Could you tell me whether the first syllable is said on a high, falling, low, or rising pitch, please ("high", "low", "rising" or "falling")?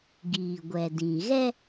low